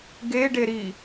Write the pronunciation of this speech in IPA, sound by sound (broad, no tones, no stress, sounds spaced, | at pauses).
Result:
ɡ e ɖ e ɾ i